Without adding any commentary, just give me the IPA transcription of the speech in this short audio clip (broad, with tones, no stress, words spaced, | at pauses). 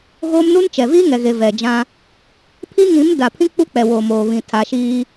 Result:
ɣo˦mnu˦n t͡ʃɛ˨viː˦ŋɛ˨ ɣe˨vɛ˨d͡ʒã˦ | pʰi˦ŋĩ˨˦m da˨pʰĩ˦ k͡pu˦k͡pɛ˨ woː˨moː˨βĩ˨ tʰa˨ʃiː˦